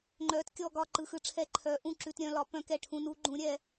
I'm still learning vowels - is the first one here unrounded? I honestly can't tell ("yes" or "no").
no